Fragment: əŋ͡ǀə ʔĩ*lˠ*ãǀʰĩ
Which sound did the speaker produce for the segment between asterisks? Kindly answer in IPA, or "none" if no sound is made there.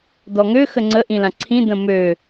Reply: l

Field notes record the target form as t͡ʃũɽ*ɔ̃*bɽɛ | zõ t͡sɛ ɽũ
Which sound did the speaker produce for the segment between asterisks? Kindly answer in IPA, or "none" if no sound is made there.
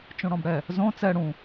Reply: ɔ̃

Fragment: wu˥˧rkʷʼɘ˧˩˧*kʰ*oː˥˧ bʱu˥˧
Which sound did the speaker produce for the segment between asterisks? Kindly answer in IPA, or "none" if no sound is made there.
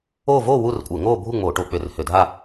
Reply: ŋ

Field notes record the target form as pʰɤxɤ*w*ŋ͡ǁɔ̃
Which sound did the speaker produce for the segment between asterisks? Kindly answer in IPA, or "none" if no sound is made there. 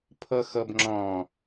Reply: b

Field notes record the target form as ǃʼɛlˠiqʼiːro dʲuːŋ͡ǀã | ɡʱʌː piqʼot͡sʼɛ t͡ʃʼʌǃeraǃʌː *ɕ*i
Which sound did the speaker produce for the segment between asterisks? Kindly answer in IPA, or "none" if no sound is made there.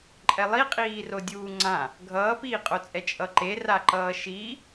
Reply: ʃ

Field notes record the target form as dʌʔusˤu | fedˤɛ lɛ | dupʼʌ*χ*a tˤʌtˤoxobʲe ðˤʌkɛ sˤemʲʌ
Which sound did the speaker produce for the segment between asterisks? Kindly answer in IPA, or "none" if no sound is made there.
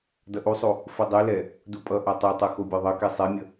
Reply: ʔ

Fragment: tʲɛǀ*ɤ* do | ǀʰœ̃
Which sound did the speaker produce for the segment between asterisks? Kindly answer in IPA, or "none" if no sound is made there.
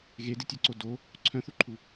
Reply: o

